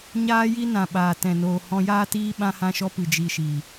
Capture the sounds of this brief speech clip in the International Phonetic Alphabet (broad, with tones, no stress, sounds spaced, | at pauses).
ɲ aː˦ j i˦ n ã˨ ɓ aː˨ t ɛ̃˨ n oː˨ h ɔ̃˧ j aː˦ t iː˦ ɓ ã˦ h ã˦ ʃ ɔ˦ p ɨ˨ d͡ʒ i˧ ʃ i˨